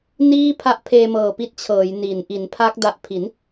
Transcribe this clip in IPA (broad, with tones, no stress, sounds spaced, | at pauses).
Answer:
n iː˥˩ pʰ a˦˥ ʔ pʰ eː˧ m ɤː˨˩ p i˦˥ t̚ t͡ɕʰ ɤː˩˦ j n i˩˦ n ʔ i˩˦ n pʰ a˦˥ k̚ d a˨˩ ʔ pʰ i˩˦ n